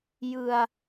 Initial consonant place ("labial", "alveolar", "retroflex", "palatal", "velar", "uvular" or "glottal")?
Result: palatal